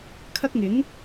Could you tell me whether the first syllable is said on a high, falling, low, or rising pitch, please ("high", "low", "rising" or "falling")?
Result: high